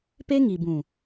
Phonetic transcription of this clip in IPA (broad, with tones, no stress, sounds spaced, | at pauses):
p e˦ ŋ i˨ b ũ˨